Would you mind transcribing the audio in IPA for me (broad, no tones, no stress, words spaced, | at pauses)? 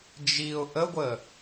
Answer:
d͡ʒiʊ̯ ʔəɡʷəː